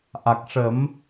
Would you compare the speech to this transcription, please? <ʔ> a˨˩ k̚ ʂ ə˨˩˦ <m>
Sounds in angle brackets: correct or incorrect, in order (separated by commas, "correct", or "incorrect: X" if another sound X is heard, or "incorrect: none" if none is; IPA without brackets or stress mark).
correct, correct